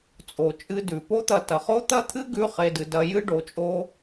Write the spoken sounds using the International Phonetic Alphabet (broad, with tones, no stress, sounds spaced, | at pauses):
t͡sʼ o˨ t͡ʃʼ ɨ˧ d ʉ˨ p o˦ t̪ ɐ˧ t ɐ˨ χ o˦ t̪ ɐ˦ t̪ʰ ɨ˦ ɡ ʉ˦ χ e˧ d ɨ˧ d ɐ˧ j ɨ˦ ɖ o˧ t͡ʃʼ o˦